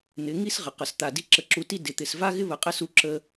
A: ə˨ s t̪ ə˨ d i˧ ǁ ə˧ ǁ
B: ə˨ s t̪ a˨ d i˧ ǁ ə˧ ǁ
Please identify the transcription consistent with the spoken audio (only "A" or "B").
B